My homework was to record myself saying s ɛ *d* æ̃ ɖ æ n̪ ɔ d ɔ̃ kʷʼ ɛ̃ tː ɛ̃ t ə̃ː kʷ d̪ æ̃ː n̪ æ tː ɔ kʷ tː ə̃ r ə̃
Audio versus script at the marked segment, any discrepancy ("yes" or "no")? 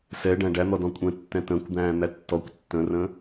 yes